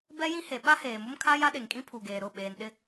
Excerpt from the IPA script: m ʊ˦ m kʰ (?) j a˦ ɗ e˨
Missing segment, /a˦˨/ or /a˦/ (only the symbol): a˦